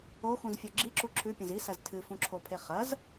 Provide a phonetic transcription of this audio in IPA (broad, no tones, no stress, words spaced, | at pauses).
oxũzfʲo ɡ͡ǁiǁu ǁʰʉpʲɐ̃z isɐz tʰɨfũǁʰopʰe χɐz